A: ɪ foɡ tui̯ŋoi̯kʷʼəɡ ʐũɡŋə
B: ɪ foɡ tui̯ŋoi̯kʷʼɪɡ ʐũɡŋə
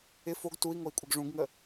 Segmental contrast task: B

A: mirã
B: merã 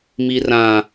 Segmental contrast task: A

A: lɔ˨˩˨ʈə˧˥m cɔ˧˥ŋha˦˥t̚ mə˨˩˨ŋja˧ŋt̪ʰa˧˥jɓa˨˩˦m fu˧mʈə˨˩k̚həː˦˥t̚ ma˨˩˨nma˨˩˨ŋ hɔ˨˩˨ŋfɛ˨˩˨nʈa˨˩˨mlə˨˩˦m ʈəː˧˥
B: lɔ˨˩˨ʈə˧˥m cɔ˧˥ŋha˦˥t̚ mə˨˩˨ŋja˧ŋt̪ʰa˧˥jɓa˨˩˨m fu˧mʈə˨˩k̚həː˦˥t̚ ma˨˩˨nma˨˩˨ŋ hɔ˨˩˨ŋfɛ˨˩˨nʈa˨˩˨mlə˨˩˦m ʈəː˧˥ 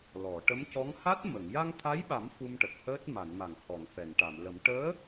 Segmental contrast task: A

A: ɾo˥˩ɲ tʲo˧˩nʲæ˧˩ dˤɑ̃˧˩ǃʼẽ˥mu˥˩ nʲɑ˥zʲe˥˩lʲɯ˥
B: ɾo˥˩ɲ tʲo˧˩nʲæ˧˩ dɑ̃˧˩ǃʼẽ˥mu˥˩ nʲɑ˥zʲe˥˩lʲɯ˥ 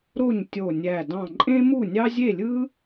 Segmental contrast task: B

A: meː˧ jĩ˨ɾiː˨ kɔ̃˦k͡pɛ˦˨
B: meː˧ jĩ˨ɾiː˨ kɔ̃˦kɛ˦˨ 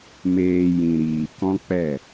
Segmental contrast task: A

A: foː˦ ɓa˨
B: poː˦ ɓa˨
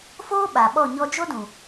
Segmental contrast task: A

